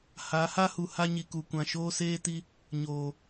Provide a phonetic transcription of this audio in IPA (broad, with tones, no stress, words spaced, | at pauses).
ha˨˦ha˦hu˨ ha˦ɲi˨ku˨kʷã˨ ʃoː˦seː˦ti˦ | ɲoː˨